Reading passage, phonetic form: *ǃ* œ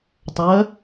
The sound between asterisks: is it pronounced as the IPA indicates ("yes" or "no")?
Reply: no